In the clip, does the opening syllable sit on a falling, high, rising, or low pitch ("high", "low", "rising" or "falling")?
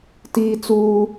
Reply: high